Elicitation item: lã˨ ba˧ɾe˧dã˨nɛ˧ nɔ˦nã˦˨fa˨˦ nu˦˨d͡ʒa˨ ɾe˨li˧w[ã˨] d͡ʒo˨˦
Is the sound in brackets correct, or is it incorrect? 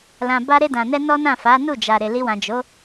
correct